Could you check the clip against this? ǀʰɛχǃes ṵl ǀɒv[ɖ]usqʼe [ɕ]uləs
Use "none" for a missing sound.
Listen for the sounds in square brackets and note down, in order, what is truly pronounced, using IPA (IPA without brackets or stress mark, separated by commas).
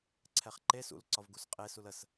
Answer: ɡ, s